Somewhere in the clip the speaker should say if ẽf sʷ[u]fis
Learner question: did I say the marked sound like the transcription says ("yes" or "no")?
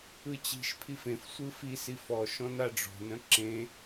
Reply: no